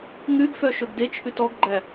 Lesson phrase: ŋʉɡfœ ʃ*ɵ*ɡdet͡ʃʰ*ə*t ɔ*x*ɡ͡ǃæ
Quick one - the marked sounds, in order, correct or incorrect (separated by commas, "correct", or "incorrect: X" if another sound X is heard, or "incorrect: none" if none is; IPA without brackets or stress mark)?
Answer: correct, incorrect: ʉ, incorrect: ɡ